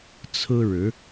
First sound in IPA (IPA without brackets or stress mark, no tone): t͡sʰ